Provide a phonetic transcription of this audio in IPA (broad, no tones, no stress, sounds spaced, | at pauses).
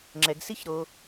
ŋ͡ǁ ɛ ɡ s i ç ɾ o